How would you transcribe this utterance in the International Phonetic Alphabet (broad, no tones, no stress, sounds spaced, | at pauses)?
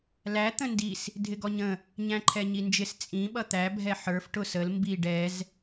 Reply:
l æ t̪ ə̃ n d i s | dʱ ɪ ɡ ɔ ɲ ə̃ | ɲ æ̃ ǃʰ ɛ ɲ i n d͡ʒ ɪ s t͡sʼ ĩ ɓ ʌ t̪ æ bʱ ɛ ħ ə˞ f ʈ ʊ s ə l m b i ɖ ɛ z